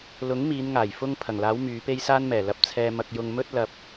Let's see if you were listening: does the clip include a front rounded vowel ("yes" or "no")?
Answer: yes